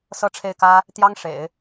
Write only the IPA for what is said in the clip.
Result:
sɤ˥˧ʈ͡ʂʰe˥˩ɪ̯kä˥ | t̪jɑ˥ŋ ʂḛ˨˩˦ɪ̯

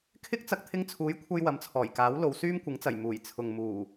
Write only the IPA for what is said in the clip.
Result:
kʰɪ˥k̚ t͡sɐ˧k̚t̪ʰɪ˧ŋt͡sʰuː˨˥jkʷʰɐ˧j wɐ˨mt͡sʰɔː˨˩jkaː˨˥w lo˨wsyː˥mkʷɪ˨˥ŋt͡sɐ˨˩j muː˨˩jt͡sʰʊ˨ŋ muː˨˩

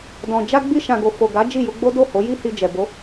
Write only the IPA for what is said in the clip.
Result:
dɔ̃˨ d͡ʒa˧ɡ͡bi˧ʃã˨ɡo˨ fo˨ɡa˨˦ d͡ʒi˦˨ju˧ɡ͡bo˦ do˦˨ho˨˦ji˦ hi˧d͡ʒɛ˨ bo˨˦

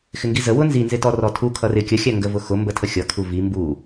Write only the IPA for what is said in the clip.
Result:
xɪŋɡizə wʊnzinzɪtɔ rɔtʰu kʰʌrɪ kʲəxʲæ ŋɡəvʊxʊ mbətʰəxʲʌkʰu vi mbu

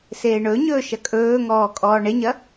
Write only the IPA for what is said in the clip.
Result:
seːɳɵɲɵː ʃɐkʼɵːŋɔː kʼɔːɳeɲɐ

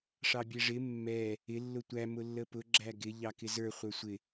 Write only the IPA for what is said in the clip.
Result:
ʂɑbʲɛʐɪ mːɛ | ɪ lːʊtʷæ mʊlːəpʊ ɡ͡ǁæɡɪ ʎɑkɪzə˞ χʷə˞sʷɪ

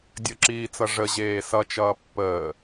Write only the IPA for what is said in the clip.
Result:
dʲəǁiːt͡sʌ ʐə ʑeːsʌt͡ʃʌː pːəː

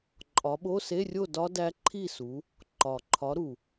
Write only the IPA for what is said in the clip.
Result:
ǃʼɒ˨˦ ɓo˧˥˧se˧˥˧rʲo˥˨dɒ˦˥ dæ˦˥ǃʰi˥˨su˨˦ | ǃɒ˨˩ǃʰɒ˨˦ ɾu˨˩

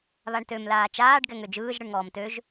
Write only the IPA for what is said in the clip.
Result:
βaɳtøm laːt͡ʃaːɖ ɡɛŋød͡ʒɯːʒ ɽɯɳŋɔːmtøʒ

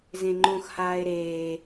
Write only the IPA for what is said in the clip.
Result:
zẽŋ͡ǃõx haːe̯ɾeː

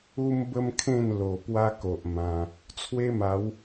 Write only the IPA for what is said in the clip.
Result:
u˦mbə˦mkʰẽ˥˧n lo˨˩ pwa˦ko˨ʔ mã˧ | t͡sʰwe˦ma˨˦w

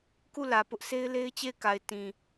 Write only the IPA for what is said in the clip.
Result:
ku˦˨lä˨pʊ˦ʔ sʰe˦ɪ̯le˦ɪ̯t͡ɕe˦˨ɪ̯ka˨ɪ̯ tĩ˨

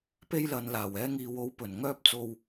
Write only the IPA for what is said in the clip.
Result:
pe˧jlɐ˨nlaː˨˩w ɛː˧ŋiː˨wo˨˥w pɵ˨˩n ŋœː˧p̚t͡so˨w

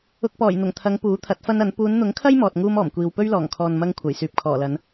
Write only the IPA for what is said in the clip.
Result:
ʊ˧k̚pɔː˨˩jn̪ʊ˨˩ŋt̪ʰɐ˨˧ŋ puː˨˥t̪ʰɐ˨˥t̚fɐ˥nɐ˨˥n puː˨˧nn̪ʊ˨˥ŋkʰɐ˥j mɔː˨t̚ŋuː˥mɔː˨˩mkʷiː˨w pɵ˥ɥlɔː˨˩ŋkʰɔː˨n mɐ˥ŋ kʷʰɐ˨˩jsyː˨p̚kʰɔː˨˩lɐ˨˧n

